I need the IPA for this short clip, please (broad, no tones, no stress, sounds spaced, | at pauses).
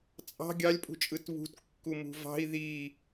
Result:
t͡sʼ ɑ̤ ɡʲ ɑ lʲ pʼ ṳ t͡ʃʼ ɯ t β ṳ t kː u m ṳ v ɑ̤ i̯ ð i